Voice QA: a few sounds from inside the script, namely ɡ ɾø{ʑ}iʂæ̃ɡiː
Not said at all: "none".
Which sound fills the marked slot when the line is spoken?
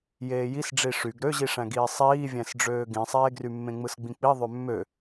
ʑ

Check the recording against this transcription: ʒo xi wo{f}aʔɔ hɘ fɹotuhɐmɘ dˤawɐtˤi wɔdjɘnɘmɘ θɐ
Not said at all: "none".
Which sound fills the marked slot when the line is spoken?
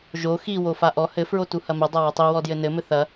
f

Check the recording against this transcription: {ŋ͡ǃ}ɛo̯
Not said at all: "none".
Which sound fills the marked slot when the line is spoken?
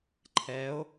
ǃʰ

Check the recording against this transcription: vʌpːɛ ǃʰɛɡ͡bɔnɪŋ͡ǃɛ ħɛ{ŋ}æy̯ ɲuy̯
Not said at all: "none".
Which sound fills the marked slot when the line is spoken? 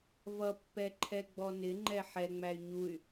ŋ͡m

